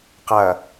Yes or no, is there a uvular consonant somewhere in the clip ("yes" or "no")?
yes